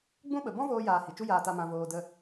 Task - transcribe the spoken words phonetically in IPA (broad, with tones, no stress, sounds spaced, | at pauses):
ɡ͡b ũ˦ ɓ ə˨ b ɔ̃˦ v oː˧ j aː˨ h i˨ t͡ʃ u˦ j aː˧ t a˧ m ã˧ v oː˧ d ə˧